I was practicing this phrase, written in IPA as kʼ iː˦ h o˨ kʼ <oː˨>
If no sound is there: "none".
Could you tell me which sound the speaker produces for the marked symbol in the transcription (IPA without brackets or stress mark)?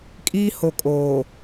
oː˨